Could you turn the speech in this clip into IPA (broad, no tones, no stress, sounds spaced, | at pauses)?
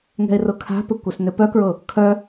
ŋ ɛ̤ ɪ̯ r ʊ kʰ a̤ p ʏ kʷ ɪ s n ʏ p œ k ɹ ʊ | kʰ œ